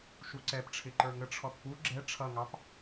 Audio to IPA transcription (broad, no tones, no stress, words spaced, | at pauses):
ʃuǀɛp ʈ͡ʂʰɪǃə˞ŋə ʈ͡ʂʰɔθpu ɡ͡ǁɛ ʈ͡ʂʰʌŋɑp